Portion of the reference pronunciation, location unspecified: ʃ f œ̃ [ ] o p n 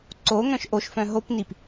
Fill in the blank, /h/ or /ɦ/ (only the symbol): ɦ